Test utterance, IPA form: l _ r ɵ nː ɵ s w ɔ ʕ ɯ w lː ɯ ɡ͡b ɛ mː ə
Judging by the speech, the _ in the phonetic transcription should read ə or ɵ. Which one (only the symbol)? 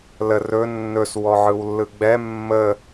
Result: ə